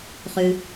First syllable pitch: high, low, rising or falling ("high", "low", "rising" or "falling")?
low